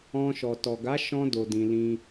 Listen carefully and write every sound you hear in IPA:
ɔ̃˧ ʃ ɔ˨ t ɔ˨ ɡ a˨˦ ʃ ɔ̃˧ d o˨ d ĩ˧ l ĩ˦

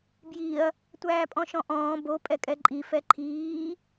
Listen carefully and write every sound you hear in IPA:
b j i ɐ̯ | tʷ æː pʼ ɔ̃ ʃ ɔ̃ ʔ ɔ̃ː b o pʼ ɛ kʼ ɛ ǃʼ i f ɛ ǃʰ iː

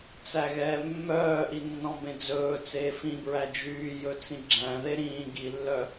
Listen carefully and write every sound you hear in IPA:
t͡s æ ɣ ɛː mː œː ʔ i nː ɔ̃ b ẽ d͡z ɵː t͡s eː f ĩ b ɹ æ d͡ʒ yː j ɵ t͡s ĩ ɡ͡ǁ æ̃ ð e ɾ ĩː ɡ i lː œ

